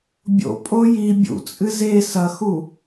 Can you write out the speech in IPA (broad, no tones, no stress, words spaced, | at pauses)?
bʲo̰pʼo ji bʲṵt͡sʼɨ ze sɐxu